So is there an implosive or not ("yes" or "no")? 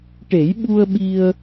yes